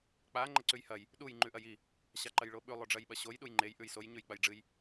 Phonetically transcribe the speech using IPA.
k͡pa ŋ͡ǃɐǀʉjhɐj | ɗuj ŋ͡ǃʉʔɐji | ɕaǃɐjɭoɓʉ lˠoɖ͡ʐɐjɓɐɕoj ɗujŋ͡ǃej ʔʉjsoj ɲʉjk͡pɐjɖ͡ʐɨj

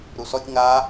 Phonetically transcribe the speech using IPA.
ɾusɔtʲ ŋa

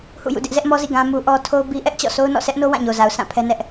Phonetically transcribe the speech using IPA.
hṵ˦˨jṵ˦˨dɪ˦ʔ zɛ˦ʔmɔ˦zḭ˦˨ ɡã˦mu˦ ʔɔ˦ tʰo˦ʊ̯bi˦ʔɛ˦ʔt͡ɕɔ̰˦˨ sʰo˦ʊ̯nɔ̰˦˨sʰɛ˦ʔno˦ wã˦˨ɲo˨za˨ʊ̯ sʰã˦˨pʰɛ˦ nɛ˦ʔ

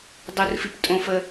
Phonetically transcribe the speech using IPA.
dˤorfip tʼõfə

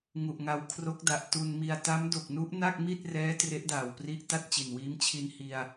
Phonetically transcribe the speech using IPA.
ŋu˨˩ʔŋa˧wkʰro˦˥k̚da˨˩ʔ tu˧nmi˧a̯ ta˦˥mdo˨˩k̚nu˦˥ʔna˥˩k̚ mi˥˩t̚rɛː˦˥ tre˦˥ʔdaː˨˩wpri˦˥ʔta˥˩t̚ t͡ɕi˨˩nwiː˦˥mt͡ɕʰi˧n hi˧a̯

